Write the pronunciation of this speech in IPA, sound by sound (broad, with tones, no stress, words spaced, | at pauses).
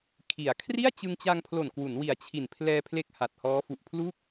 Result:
kʰi˩˦a̯ kʰri˥˩a̯t͡ɕɯ˧ŋt͡ɕa˧ŋpʰlo˨˩n kwu˩˦nwi˨˩a̯t͡ɕʰi˨˩n pʰlɛː˧pʰle˦˥k̚ ha˨˩t̚hɔː˦˥ fu˨˩ʔpʰlu˥˩k̚